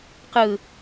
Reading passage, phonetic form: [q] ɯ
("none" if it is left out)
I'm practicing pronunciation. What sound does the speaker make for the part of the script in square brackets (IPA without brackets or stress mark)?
q